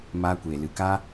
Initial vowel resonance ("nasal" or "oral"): oral